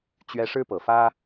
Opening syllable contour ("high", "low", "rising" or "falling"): high